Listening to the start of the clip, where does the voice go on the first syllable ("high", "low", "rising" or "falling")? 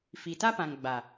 low